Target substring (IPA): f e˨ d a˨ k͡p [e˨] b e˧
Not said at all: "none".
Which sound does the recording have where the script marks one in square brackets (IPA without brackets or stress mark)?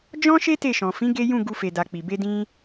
i˨